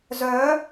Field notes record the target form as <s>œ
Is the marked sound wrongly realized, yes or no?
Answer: yes